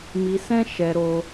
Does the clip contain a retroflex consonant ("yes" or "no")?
no